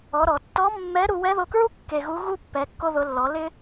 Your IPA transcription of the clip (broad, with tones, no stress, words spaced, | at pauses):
ɔ˩˧ɾɔ˩ tːɔ˧˥mːɛ˧˥ ɾu˧wɛ˧˥ðo˧kɹu˥ kːe˧ɣu˧˥ɣu˥ pːɛ˩˧kːo˧ðʊ˩˧lːɔ˩˧ lɪ˥